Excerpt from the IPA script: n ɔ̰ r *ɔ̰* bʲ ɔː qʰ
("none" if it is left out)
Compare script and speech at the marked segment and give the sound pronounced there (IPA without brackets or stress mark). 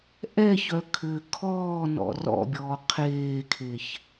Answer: ɔ̰